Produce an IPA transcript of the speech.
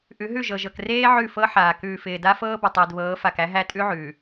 ʔ ʉ˨˦ ɦ ʉ˦˨ ʒ ɤ˨ ʒ ɤ˨ k r eː˦ ʕ ʉ˦˨ f ɤ˦ ħ aː˨ k ʉː˨ f ɪː˨ d a˦ f ɤː˦ b ə˨ tˤ ɪː˨ d β ɤː˨˦ f a˨ k æ˦ ɦ æ˦ tʼ ʉ˦ ʕ ʉː˨

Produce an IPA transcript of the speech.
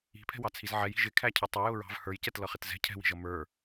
i̤ pʰ ɛ̤ w ɑ t͡sʰ i z ʕ ɛ j i̤ ʒ ɪ kʰ æ cʰ ʌ tˤ ɪ j ʊ ɹ ɑ̤ v h ə˞ j c ɛ t l ʌ χ ɪ t z ɛ̤ cʰ ɛ̤ w i̤ ʒ ʌ m ə˞

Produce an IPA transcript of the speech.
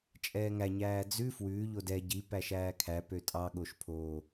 t͡ʃʼ ɛː ŋ æ ɲ æː d͡z ʉ f w ʉː ʎ o d ɛ ɟ i p æ ʃ æː kʰ æ p ø tʼ ɑ ɠ o ʃ pʰ o

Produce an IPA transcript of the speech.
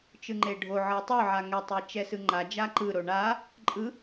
t͡ʃ ɯ ŋ͡ǃ e ɖʱ o ʕ ɤ tˤ o ʕ a ŋ ɛ tˤ e t͡ʃ ɛ s ɯ ŋ͡ǃ a d͡ʒ a ǃ ɯ ɾ o ɳ a | ǃʼ ɯ

